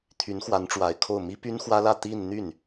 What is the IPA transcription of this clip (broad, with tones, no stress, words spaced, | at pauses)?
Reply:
t̪ʰy˧˥nxwa˧˥nʈ͡ʂwa˨˩ɪ̯kʰo˥˩ʊ̯ mi˥py˥nxwä˥lä˥˧ t̪i˥˧nn̪y˥˩n